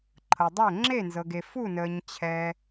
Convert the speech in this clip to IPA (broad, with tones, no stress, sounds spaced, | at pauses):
ǃʰ ɤ˨ dˤ ɛ˥˩ ŋ͡ǁ e˥˩ n z ɤ˨ ɡ e˨ f u˥˩ n əː˨ ɲ t͡ɕʰ ɛ˨